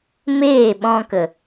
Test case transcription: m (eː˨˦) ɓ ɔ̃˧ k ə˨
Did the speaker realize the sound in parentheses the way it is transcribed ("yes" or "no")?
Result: no